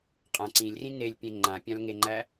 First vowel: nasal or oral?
nasal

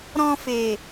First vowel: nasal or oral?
nasal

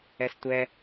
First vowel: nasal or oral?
oral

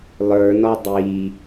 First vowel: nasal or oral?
oral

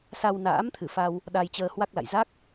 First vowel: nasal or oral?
oral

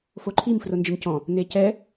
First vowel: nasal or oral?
oral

